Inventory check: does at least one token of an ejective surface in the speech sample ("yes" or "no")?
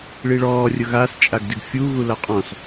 yes